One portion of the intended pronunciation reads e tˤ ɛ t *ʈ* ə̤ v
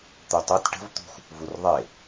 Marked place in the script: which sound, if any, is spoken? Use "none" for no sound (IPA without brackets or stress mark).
ʈ